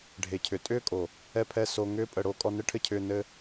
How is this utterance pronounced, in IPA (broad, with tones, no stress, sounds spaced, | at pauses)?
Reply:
ɖʱ e˨ cʰ ʏ˨ tʼ ʏː˦ kʼ o˨ | ɛ˧ pʰ ɛ˧ s o˧ ŋ ʏː˦ pʼ ə˧ ɽ o˦ kʼ ɔ˧ n ɘ˦ ʈʰ ɘ˦ cʰ ʏː˧ n ɘ˦